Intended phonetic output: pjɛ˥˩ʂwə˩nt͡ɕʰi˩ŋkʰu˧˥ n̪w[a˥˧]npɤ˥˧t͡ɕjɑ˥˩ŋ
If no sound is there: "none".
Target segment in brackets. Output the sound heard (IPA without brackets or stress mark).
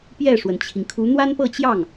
a˥